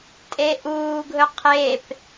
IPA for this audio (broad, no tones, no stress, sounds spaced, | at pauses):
tʼ e ʔ uː ɡʱ ɵ qʰ e p